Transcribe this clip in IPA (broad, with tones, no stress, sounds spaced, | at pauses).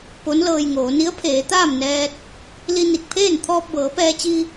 p o˧˥ n l ɤː˧ j ŋ oː˩˧ n i˧˥ ə̯ pʰ eː˩˧ t̪ aː˥˨ m n ɛː˧ t̚ | l i˧ n i˧˩ k̚ pʰ eː˥˨ n t̪ʰ ɔː˧ p̚ b ɤː˩˧ p ɛː˧ t͡ɕ i˧